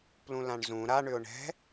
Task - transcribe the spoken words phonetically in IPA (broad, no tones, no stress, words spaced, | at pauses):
plũlãɳzũ ɾa ɳʏʊ̯ɳɛ̤